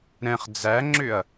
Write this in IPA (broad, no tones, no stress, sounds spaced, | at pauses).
ɾ ɛ̃ χ d͡z æ ŋ͡ǁ ʏ ɐ̯